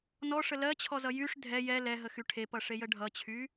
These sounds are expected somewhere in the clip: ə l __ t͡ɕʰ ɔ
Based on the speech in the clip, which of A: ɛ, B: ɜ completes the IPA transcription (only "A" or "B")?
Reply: B